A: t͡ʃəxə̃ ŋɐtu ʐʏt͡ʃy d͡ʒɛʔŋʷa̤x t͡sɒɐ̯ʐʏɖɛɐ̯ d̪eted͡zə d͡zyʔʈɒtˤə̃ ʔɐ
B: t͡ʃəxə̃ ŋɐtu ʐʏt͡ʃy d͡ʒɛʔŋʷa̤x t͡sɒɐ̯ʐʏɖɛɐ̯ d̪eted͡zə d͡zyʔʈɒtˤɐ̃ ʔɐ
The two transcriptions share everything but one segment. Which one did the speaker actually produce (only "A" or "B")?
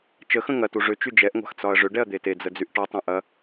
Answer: B